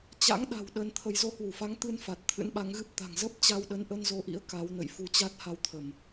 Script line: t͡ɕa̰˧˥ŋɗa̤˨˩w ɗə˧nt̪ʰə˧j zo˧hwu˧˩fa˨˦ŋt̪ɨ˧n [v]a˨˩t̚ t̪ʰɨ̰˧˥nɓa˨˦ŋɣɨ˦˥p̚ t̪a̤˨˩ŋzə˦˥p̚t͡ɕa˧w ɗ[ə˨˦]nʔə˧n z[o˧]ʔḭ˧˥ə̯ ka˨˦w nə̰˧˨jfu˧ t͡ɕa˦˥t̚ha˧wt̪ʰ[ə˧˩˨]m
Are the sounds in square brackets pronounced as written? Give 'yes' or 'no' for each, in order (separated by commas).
no, yes, yes, yes